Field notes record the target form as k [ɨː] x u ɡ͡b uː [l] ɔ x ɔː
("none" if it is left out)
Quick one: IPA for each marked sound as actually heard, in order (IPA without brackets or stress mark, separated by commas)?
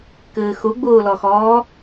ɨː, l